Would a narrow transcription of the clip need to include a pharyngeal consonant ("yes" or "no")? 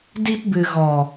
no